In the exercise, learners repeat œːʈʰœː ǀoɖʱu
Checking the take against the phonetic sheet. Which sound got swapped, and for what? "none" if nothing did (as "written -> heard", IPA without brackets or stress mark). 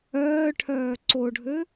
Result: u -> ø